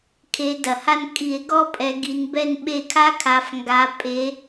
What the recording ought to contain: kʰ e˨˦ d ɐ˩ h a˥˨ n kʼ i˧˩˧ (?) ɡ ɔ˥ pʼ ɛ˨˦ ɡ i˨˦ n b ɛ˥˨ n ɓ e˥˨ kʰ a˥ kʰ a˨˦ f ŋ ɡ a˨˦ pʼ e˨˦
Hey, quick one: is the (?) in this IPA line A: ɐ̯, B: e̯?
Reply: B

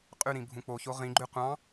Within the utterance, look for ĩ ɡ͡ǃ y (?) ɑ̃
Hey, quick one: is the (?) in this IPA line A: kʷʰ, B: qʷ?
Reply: B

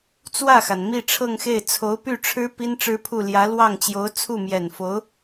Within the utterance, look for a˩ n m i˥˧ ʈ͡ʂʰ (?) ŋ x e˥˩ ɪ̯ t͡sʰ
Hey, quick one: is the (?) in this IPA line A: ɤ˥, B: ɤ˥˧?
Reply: B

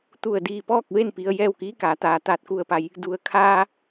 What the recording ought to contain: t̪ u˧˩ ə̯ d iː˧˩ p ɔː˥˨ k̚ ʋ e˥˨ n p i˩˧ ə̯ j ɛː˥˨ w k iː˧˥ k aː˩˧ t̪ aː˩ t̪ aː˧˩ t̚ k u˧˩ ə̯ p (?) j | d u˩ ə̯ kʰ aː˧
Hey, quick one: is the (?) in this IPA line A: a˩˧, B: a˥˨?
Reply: A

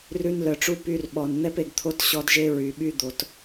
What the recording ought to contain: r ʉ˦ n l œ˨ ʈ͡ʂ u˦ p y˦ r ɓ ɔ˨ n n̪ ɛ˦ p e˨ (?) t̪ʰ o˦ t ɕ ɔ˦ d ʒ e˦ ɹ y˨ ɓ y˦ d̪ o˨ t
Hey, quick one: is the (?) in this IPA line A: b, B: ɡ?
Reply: B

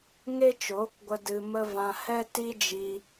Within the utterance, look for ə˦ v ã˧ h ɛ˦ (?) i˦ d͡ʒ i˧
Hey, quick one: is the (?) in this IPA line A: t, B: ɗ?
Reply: A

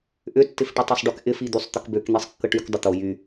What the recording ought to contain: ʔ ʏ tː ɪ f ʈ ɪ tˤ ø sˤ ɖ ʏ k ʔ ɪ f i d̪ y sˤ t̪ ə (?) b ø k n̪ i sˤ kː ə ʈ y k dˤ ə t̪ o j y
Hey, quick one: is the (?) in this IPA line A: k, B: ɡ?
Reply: A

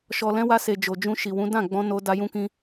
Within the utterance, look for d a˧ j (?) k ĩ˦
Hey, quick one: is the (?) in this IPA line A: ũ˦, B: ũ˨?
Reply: A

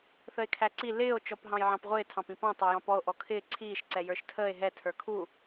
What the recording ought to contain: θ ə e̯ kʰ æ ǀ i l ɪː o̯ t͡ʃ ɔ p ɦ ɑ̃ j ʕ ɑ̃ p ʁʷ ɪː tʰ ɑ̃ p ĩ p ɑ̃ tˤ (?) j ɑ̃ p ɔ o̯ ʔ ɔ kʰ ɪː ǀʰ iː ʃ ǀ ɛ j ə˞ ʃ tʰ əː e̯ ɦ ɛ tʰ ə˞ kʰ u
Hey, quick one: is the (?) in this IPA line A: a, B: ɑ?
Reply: B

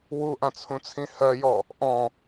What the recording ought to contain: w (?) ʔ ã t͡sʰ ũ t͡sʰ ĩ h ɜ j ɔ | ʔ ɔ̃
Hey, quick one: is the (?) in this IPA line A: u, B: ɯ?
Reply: A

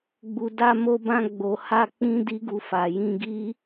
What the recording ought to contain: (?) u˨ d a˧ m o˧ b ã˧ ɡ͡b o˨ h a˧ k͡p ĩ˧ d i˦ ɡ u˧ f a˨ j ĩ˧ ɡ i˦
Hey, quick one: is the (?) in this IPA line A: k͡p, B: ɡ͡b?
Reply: B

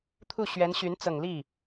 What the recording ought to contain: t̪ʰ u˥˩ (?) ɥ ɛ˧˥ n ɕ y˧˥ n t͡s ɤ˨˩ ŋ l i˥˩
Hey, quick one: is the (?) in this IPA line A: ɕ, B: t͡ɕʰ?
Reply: A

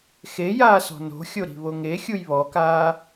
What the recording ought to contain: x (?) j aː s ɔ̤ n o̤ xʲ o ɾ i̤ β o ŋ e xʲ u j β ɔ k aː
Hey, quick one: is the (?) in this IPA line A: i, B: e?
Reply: B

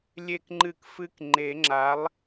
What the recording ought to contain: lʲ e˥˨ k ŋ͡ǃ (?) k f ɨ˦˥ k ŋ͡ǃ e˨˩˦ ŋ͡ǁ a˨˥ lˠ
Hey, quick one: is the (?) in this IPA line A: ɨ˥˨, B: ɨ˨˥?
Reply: A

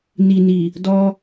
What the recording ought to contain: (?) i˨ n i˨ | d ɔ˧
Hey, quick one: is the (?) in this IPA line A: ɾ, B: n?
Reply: B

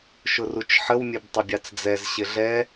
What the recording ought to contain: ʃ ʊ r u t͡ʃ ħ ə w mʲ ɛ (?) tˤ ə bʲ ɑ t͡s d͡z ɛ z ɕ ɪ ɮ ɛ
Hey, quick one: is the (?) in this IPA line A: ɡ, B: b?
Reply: B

